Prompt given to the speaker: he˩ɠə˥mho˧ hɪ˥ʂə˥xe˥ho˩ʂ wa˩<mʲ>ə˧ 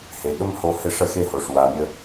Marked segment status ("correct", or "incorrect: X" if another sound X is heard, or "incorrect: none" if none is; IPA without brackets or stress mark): correct